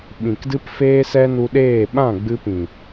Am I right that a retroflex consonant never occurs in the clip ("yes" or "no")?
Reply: yes